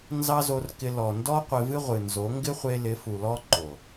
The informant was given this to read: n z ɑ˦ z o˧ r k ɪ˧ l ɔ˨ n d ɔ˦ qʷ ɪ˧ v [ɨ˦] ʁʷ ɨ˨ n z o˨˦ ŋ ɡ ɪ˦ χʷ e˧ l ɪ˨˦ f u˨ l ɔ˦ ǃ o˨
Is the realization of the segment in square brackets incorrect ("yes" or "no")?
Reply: no